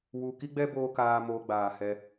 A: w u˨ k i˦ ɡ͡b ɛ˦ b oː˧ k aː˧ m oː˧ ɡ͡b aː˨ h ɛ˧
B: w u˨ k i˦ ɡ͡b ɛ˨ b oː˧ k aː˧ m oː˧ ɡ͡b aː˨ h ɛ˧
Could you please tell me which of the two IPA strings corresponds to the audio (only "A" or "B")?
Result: A